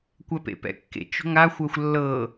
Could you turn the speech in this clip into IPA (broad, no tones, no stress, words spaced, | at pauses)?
kʷɛpḛpɛ̰kːḛ t͡ʃo̤ŋa xʷɜxʷlːɤ